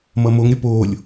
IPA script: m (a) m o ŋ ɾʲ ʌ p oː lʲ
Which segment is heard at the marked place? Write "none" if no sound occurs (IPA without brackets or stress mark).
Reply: ʌ